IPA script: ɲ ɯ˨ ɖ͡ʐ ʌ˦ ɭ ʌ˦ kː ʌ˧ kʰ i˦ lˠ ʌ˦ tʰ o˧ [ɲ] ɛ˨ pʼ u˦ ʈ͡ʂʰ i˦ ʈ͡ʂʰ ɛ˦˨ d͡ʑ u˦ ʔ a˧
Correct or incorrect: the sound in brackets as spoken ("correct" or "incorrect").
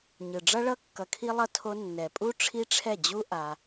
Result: incorrect